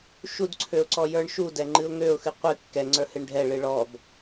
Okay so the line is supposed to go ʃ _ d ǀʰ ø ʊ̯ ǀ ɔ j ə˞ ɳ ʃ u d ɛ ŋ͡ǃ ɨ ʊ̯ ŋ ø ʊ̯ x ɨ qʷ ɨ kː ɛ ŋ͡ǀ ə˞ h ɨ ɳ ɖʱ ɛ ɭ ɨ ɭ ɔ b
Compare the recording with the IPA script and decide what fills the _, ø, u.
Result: u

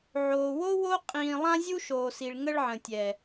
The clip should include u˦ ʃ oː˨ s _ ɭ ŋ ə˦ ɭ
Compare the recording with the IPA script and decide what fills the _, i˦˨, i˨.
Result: i˨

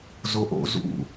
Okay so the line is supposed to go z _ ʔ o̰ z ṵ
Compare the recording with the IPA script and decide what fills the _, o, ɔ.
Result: o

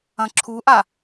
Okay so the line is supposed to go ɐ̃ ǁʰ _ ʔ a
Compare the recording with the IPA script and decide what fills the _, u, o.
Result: u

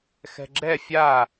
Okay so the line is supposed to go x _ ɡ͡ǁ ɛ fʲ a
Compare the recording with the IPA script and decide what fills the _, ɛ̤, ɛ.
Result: ɛ̤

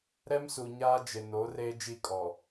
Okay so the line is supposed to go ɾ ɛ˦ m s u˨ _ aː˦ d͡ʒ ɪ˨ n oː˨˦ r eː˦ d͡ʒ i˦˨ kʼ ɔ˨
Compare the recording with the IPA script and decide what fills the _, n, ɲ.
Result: ɲ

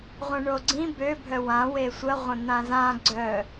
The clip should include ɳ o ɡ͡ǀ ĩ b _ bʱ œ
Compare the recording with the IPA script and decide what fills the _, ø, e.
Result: ø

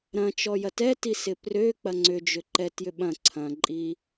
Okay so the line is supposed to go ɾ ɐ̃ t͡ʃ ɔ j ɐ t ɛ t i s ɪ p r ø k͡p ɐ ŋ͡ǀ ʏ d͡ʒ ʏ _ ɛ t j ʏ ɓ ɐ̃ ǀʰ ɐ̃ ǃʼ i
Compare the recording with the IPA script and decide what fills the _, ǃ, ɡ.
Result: ǃ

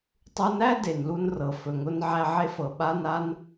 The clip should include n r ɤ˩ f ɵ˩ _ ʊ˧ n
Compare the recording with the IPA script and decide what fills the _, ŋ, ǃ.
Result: ŋ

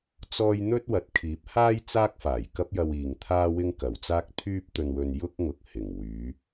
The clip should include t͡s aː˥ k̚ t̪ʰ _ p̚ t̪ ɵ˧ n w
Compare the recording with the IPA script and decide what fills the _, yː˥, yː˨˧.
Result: yː˥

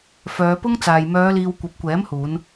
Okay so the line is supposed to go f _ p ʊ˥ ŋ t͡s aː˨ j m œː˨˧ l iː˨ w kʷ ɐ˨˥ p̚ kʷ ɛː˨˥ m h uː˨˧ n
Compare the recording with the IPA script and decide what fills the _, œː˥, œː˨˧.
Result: œː˨˧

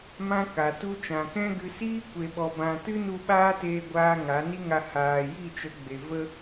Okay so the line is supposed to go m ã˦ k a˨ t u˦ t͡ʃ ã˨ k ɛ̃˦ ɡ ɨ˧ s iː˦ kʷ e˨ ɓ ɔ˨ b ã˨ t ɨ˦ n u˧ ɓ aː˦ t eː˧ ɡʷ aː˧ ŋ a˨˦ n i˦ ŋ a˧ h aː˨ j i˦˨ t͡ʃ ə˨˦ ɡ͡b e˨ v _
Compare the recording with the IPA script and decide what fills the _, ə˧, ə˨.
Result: ə˧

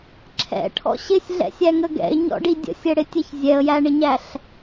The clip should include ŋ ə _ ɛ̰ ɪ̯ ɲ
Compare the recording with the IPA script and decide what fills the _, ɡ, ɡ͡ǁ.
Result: ɡ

